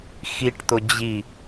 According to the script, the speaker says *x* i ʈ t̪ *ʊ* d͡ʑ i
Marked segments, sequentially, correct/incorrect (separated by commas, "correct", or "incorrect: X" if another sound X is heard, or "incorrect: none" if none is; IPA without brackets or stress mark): correct, correct